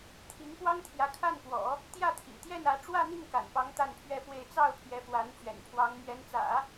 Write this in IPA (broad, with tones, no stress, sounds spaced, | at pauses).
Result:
t̪ʰ i˧˥ ŋ p w ɑ˥ ŋ t̪ʰ j ä˧˥ kʰ a˥˩ n p w ɔ̰˨˩˦ | t̪ j ä˥˩ t̪ʰ ḭ˨˩ t̪ j ɛ˥˩ n ä˧˥ ʈ͡ʂ w ä˥˧ n̪ i˥˩ ŋ k a̰˨˩ n p ɑ˧˥ ŋ t̪ a˥˧ n pʰ ɥ ɛ˥˧ f w e˥˧ ɪ̯ t͡s ɑ˥˩ ʊ̯ pʰ j ɛ˧˥ f w a˧˥ n t͡ɕ ɥ ɛ̰˨˩ n pʰ w ɑ˧˥ ŋ m ɥ ɛ˧˥ n t͡s ä̰˨˩˦